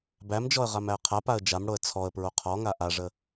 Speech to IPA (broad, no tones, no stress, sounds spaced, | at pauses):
b æ m d͡ʒ ɔ ə̯ ʁ a m æ ə̯ qʰ a p a ə̯ d͡ʒ a m ɽ o ə̯ t͡sʰ ɔ ə̯ p ɹ o qʰ ɔ ŋ a ʔ a ʐ ə